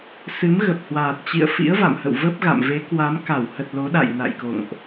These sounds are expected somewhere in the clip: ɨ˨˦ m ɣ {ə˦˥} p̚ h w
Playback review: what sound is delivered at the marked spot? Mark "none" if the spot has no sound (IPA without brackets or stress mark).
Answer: ə˨˩